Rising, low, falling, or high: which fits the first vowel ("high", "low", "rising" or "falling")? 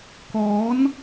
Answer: rising